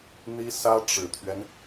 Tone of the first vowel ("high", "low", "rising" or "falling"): high